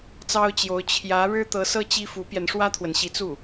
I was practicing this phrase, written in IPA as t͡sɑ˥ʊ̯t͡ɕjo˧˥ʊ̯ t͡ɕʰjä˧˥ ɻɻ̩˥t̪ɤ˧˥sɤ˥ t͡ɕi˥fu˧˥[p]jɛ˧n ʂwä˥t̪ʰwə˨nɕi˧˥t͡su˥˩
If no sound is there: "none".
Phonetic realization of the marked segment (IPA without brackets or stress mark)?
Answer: p